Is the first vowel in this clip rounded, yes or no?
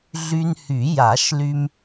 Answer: yes